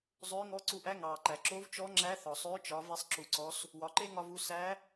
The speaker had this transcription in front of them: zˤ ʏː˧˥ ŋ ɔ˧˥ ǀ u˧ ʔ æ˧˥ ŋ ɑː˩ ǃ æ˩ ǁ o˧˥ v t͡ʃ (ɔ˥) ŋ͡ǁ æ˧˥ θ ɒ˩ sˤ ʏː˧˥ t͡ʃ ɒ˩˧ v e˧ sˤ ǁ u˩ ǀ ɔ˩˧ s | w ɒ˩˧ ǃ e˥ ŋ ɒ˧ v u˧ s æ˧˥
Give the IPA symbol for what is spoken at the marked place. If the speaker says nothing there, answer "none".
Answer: ɔ˧˥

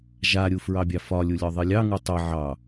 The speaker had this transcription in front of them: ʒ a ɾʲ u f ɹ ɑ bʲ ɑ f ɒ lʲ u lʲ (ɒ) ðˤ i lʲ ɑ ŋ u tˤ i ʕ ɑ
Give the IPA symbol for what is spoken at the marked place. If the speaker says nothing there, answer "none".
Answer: ɒ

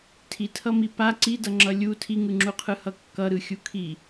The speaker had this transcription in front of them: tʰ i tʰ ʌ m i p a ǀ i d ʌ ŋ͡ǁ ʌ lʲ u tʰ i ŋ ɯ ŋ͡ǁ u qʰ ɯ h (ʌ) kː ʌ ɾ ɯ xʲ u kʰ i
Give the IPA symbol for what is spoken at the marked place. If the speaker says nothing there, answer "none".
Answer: ʌ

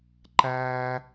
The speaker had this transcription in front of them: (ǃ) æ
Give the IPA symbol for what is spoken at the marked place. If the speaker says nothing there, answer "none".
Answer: ǃ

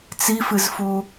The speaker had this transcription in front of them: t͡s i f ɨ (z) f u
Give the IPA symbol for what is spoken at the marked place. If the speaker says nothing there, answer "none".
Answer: z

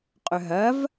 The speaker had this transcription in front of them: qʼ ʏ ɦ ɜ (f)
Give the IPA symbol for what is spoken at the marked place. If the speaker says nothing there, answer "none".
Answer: v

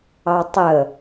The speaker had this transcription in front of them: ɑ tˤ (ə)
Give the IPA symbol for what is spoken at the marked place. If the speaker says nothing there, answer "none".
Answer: ə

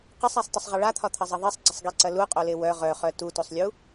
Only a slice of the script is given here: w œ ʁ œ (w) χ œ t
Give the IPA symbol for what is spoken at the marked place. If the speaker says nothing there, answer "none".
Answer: none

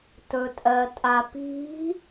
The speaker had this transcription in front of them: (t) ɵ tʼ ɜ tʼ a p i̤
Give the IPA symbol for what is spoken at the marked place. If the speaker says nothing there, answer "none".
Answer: t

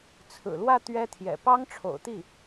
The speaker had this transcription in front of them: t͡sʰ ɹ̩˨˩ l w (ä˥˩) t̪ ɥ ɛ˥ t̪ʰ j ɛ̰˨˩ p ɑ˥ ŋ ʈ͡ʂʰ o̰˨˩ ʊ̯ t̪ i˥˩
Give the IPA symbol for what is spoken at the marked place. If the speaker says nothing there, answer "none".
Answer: ä˥˩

